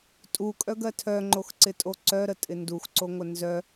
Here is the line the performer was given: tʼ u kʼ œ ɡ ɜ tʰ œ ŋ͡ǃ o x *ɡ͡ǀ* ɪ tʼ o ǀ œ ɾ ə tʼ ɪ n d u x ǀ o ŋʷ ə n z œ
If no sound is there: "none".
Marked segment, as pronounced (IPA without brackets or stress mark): ǀ